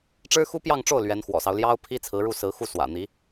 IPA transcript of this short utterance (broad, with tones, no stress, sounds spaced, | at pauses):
ʈ͡ʂ ɻ̩˥ x u˥ p j ɑ˥˧ ŋ ʈ͡ʂ o˥˩ ʊ̯ l ɥ ɛ˧˥ n x w ɔ̰˨˩ s ɑ˦ ʊ̯ l j ɑ˥ ʊ̯ pʰ i˥ t͡sʰ ɹ̩˧˥ ɻ u˥˩ s ɹ̩˧˥ x u˥˩ s w ä̰˨˩ n̪ i˧˥